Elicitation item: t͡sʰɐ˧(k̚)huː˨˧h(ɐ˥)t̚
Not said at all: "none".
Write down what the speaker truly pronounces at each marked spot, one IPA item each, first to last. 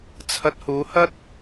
t̚, ɐ˥

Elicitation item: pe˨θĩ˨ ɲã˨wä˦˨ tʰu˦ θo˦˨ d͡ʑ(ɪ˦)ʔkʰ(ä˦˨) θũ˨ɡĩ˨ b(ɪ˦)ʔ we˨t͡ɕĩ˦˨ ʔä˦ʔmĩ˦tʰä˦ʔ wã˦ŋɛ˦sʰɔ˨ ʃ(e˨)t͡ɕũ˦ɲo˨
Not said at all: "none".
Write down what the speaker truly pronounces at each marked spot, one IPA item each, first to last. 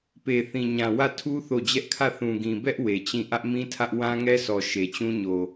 ɛ˦, ä˦˨, ɛ˦, e˨

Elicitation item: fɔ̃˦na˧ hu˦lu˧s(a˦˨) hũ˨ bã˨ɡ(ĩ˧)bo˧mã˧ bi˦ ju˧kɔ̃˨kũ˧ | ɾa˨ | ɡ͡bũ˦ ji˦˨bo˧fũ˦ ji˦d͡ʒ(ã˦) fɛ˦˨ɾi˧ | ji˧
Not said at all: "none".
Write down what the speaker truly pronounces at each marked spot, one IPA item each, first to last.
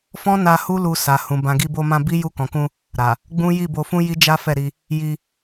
a˨, i˧, a˦

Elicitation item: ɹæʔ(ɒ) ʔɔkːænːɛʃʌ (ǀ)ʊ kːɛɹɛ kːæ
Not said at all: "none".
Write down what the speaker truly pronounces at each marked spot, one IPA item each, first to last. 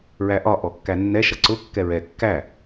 ɒ, ǀ

